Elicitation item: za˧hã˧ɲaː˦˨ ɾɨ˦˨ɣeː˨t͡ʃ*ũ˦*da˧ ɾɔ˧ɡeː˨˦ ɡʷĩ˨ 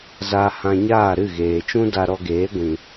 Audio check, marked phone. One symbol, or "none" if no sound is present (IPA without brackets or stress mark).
ũ˦